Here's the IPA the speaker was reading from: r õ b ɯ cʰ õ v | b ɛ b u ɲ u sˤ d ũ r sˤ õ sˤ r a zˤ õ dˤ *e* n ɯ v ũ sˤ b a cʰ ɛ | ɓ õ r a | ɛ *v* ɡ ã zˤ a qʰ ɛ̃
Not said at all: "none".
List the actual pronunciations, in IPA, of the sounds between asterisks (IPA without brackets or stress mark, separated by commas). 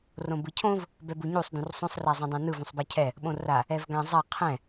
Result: ẽ, v